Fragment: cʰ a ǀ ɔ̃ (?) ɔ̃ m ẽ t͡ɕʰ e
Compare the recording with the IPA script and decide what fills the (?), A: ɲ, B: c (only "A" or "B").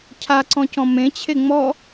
B